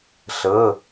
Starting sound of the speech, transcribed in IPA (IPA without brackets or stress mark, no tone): ɬ